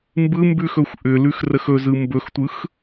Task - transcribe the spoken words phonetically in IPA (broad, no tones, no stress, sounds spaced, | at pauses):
m b ɯ m b ʉ x ɵ xʷ ʔ ʏ l ʉ x r ə x ɵ z ɯ m b ɵ x tʷ ɯ x